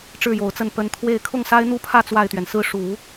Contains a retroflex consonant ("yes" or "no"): yes